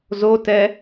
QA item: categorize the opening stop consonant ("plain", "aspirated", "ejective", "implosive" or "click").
plain